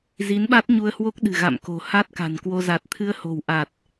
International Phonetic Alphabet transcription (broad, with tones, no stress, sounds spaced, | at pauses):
z i˨˦ n ɓ a˦˥ t̚ ɲ u˧ ə̯ h w o˦˥ k̚ ɗ ɨ̤˨˩ ɣ a̰˧˨ m k o̤˨˩ h a˦˥ t̚ k a̤˨˩ n k w o˧ z a˨˩ t̚ t̪ʰ ɨ˧ ə̯ h o̤˨˩ w ʔ a˨˩ t̚